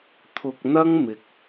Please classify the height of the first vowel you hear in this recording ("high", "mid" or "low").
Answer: high